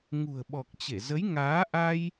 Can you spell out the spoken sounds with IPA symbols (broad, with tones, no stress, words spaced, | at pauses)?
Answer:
ŋṳ˨˩ə̯ɓɔ˨˩k̚t͡ɕe˧˩ zə˨˦jŋaː˨˦ʔa˧j